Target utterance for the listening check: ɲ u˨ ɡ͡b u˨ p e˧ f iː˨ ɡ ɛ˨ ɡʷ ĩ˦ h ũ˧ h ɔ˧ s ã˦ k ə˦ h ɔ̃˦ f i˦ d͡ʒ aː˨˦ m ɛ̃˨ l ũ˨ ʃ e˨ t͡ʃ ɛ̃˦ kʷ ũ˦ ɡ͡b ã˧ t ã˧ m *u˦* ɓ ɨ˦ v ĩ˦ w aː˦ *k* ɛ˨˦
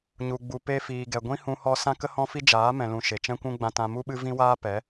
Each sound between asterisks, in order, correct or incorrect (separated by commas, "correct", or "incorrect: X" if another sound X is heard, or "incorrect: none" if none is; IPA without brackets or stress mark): correct, incorrect: p